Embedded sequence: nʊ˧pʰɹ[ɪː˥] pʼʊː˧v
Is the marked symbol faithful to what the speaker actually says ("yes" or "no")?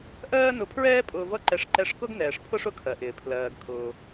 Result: no